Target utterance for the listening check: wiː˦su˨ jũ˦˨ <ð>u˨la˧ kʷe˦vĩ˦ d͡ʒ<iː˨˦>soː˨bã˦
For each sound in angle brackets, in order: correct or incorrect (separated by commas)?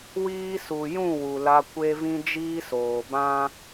incorrect, incorrect